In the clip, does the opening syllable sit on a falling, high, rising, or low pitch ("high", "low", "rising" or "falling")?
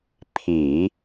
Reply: low